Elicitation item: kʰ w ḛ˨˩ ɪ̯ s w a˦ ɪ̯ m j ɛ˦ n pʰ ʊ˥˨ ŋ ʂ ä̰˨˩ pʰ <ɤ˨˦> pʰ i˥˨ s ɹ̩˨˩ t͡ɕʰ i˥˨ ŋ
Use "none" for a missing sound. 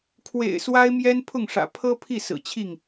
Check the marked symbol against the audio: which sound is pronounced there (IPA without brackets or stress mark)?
ɤ˦